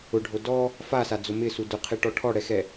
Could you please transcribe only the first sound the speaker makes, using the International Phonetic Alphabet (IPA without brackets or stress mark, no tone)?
ʊ